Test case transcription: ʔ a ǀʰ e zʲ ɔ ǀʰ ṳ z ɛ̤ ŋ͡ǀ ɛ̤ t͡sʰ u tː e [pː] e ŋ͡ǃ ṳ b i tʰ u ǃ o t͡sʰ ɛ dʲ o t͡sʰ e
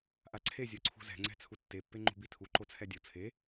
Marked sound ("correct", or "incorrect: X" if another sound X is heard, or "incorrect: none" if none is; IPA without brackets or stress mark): correct